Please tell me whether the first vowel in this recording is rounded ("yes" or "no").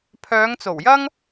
yes